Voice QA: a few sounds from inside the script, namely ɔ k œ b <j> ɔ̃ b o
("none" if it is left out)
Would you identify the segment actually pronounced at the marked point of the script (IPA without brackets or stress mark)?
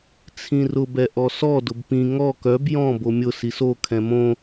j